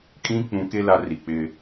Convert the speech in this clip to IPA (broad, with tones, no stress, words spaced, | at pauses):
kʼĩ˦ k͡pũ˨˦ke˦ la˦ri˨k͡pɪ˦